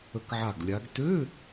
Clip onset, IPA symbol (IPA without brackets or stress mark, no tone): ə